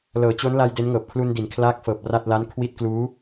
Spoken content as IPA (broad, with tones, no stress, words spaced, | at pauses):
lɤː˩˦t͡ɕo˦˥nla˧j de˦˥nŋɤː˨˩p̚ kʰlu˧ndi˨˩nkʰlaː˦˥k̚fɤː˨˩p̚ ra˥˩t̚ la˦˥nkʰwi˦˥t̚kluː˦˥